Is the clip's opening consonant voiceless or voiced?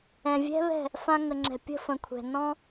voiced